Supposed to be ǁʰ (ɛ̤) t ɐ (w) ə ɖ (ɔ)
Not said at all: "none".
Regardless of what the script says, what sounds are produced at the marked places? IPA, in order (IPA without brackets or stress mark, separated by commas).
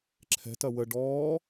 ɛ̤, w, ɔː